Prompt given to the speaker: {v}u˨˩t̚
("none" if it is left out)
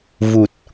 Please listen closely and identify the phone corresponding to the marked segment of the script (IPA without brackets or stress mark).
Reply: v